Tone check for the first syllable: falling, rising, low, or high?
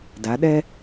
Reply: rising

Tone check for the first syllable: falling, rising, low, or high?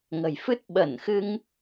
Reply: low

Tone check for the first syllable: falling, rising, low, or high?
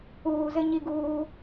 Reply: low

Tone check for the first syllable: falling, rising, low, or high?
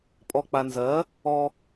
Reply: low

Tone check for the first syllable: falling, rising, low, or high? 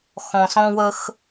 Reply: low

